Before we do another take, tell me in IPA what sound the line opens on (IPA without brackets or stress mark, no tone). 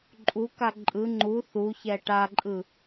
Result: ǃʼ